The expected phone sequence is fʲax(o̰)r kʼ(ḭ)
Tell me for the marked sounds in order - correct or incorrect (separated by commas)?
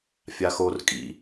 incorrect, correct